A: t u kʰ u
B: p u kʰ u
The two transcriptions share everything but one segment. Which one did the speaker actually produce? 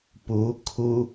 B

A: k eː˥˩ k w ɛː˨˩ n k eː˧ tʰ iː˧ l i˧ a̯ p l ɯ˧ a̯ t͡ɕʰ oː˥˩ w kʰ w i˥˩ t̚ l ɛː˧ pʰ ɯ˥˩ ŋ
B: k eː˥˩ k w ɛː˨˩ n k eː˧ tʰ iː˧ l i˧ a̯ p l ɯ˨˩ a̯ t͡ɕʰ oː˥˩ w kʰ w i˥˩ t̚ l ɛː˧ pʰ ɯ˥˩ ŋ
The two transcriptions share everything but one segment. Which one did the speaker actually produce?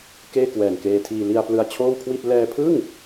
A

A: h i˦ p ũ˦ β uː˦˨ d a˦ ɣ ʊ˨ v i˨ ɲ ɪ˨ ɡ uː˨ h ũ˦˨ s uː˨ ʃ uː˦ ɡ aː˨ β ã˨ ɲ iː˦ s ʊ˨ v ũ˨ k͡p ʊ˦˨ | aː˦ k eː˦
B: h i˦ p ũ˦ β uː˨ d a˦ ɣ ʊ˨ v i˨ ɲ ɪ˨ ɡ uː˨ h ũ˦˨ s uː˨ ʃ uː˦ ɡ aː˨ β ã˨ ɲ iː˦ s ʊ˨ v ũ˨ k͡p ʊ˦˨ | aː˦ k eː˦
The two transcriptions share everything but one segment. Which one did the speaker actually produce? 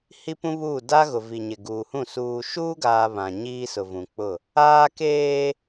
A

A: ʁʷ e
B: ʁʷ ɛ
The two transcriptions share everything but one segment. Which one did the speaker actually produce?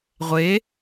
A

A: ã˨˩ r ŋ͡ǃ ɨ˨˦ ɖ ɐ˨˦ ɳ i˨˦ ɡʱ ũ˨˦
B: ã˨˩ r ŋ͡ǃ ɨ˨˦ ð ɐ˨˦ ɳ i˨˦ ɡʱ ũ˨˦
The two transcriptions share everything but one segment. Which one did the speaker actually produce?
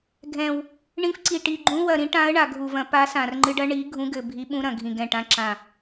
A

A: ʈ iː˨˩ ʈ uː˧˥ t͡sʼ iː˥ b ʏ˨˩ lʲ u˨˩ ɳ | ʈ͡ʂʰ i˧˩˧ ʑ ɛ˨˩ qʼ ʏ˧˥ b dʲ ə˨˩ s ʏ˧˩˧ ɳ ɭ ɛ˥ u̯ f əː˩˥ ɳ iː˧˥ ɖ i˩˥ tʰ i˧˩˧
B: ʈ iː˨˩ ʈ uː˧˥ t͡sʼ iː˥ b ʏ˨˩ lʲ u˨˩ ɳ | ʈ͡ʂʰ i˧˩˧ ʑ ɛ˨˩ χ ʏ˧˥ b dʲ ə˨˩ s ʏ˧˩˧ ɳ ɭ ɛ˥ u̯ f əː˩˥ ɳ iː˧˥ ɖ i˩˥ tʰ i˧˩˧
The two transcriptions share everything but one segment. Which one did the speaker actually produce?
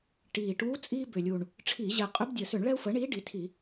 A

